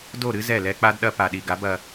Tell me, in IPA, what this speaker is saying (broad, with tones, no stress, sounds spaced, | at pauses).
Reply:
d o˦˨ ɾ ɨ˦ z ɛ˦˨ l ɛ˦ k͡p a˦ d ɗ ɐ˦ p a˨ ɗ i˨ ɡ a˨˦ b ɐ˧